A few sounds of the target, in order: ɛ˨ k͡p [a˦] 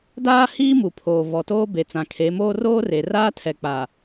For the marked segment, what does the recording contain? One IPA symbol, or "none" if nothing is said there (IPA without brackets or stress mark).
a˨